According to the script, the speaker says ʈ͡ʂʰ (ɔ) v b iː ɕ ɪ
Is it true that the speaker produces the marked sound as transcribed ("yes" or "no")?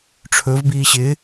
no